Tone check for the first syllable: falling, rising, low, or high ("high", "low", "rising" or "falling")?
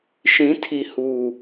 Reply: rising